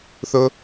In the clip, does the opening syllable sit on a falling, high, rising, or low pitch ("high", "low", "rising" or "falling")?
high